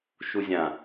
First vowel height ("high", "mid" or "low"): high